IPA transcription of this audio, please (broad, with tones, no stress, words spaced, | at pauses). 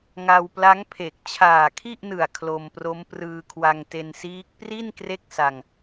ŋa˧wpla˦˥ŋpʰe˨˩k̚ t͡ɕʰaː˨˩kʰi˥˩ʔnɯ˨˩a̯ kʰlo˧mpro˦˥m prɯː˧kʰwa˧ŋte˧nsiː˦˥k̚ pri˥˩n kre˥˩k̚sa˧ŋ